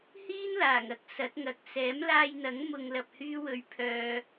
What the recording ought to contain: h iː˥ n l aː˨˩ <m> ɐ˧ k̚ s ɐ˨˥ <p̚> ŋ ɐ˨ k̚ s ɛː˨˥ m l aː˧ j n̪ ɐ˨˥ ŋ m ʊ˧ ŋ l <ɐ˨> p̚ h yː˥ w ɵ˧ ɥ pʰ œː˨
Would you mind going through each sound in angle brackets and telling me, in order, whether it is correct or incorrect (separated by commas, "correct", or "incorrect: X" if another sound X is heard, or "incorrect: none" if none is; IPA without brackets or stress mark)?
incorrect: ŋ, incorrect: t̚, incorrect: ɐ˧